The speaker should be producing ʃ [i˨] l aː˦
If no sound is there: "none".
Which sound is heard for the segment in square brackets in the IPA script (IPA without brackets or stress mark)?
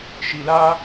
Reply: i˨